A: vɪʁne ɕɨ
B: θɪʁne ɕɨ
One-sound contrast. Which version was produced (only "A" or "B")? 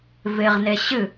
A